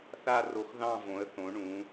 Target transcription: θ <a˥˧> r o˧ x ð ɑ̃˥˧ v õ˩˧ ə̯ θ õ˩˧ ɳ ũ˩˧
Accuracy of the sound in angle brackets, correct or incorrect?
correct